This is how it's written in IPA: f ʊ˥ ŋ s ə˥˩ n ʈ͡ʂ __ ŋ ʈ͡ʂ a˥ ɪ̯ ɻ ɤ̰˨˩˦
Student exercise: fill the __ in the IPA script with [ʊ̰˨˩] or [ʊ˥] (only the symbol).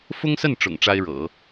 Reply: ʊ̰˨˩